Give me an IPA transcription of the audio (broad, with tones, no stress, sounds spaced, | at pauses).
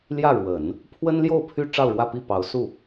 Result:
l j ä˥˩ ɻ w ə˨˩˦ n | pʰ w ə˥ n l j o˥˩ ʊ̯ pʰ y˥ ʈ͡ʂ ɑ˥˧ ʊ̯ ɻ w ä˥˧ p i˥˩ p ɑ˧˥ ʊ̯ s u˥˩